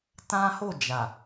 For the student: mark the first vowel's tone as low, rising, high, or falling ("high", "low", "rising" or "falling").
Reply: high